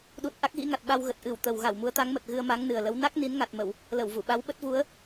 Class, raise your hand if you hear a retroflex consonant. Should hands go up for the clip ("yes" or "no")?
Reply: no